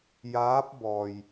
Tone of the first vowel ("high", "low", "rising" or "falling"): rising